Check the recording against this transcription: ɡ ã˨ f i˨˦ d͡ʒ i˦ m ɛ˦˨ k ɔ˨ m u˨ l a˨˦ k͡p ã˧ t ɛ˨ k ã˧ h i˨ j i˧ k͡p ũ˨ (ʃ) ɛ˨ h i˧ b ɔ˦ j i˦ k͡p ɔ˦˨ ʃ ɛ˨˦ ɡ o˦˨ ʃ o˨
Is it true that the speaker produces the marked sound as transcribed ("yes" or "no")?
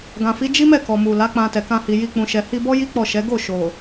yes